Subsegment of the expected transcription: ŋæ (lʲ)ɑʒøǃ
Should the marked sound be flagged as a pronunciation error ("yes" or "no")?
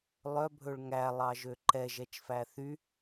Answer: yes